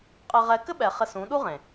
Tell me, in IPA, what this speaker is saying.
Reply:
qʼ ɘ˧ ʁ ɛ˧ k ɘ˦ ɓ ɛ˨ χ ɘ˧ s ũ˨˦ ɗ u˦ ʁ ẽ˨

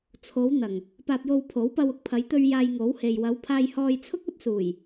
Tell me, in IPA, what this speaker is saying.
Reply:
t͡sʰ o˨˧ w n̪ ɐ˨˩ ŋ | p aː˧ p̚ j o˧ w pʰ o˨˥ w p ɐ˧ w ʊ˧ k̚ pʰ ɐ˨˧ j t̪ ɵ˧ ɥ j aː˧ j ŋ o˨˥ w h e˨ j w ɐ˨˧ w pʰ aː˧ j h ɔː˧ j t͡sʰ ʊ˥ k̚ ɐ˥ t̚ s uː˨˩ j

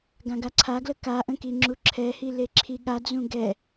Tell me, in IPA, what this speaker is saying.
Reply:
ɡ ã ɡ a ǀʰ a ɡ l ə k a ʔ ə̃ k i ŋ͡ǁ u ǁʰ ɛ h i l e ǁʰ i ɠ a d͡z ũ ɡ ɛ

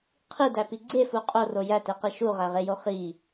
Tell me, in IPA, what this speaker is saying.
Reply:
qʰ i d æ p i ɡ͡ǀ e f u qʼ o r o j æ t e q i ʃ u ʁ æ ʁ e j o χ i

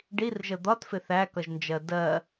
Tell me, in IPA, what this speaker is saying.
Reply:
ɖ i r ʒ ə d̪ ɒ t f ɪ θ æ k ʌ ʒ n d͡ʒ ɜ d ɜ

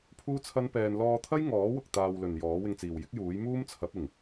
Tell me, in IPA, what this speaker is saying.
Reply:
pʰ uː˥ t͡sʰ ɐ˥ n p ɛː˧ n l ɔː˧ t̪ʰ ɐ˥ j ŋ ɔː˨˥ w ʊ˨ k̚ t̪ aː˧ w l ɵ˨ n j ɔː˨˥ w ɪ˧ ŋ t͡s iː˨ w j ɪ˥ k̚ j uː˨˥ j m uː˥ m t͡sʰ ɐ˨˥ p̚ ɪ˨˩ ŋ

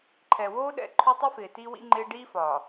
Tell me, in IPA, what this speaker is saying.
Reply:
ǃʰ ɛ˨ w oː˦ ɗ ɛ̰˨ ǃʰ o˦ tˤ i˦ f ɪː˨ t iː˦ w ḭ˦ ŋ͡ǃ ɪː˦ ɖ iː˦ f ɒː˨

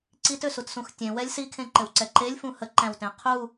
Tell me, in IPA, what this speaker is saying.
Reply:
ǀ i t ø s u t s ũ x tʲ ẽ w ɛ lʲ s i kʰ ẽ ǃ ɘ w ǀ ɛ ǃ e lʲ f ũ h ə ǃ æ̃ w t ẽ qʰ u

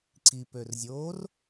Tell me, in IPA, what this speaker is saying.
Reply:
ǀ i p ø r zʲ oː r

